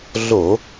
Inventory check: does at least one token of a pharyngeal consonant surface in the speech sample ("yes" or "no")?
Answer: no